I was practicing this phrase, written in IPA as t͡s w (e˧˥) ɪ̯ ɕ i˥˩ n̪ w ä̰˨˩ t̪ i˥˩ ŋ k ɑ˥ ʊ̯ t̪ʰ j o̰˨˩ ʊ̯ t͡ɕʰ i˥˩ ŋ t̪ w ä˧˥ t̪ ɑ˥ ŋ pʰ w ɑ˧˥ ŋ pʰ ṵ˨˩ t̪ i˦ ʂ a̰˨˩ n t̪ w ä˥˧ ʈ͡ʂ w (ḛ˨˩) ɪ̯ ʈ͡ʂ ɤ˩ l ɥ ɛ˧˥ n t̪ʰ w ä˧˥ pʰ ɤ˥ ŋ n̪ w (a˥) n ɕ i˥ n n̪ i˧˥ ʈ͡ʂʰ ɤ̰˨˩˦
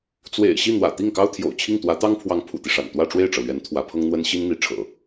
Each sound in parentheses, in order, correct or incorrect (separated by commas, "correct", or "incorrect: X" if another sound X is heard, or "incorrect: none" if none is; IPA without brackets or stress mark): incorrect: ḛ˨˩, incorrect: e˥˩, incorrect: ə˥